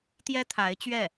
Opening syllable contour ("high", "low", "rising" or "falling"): high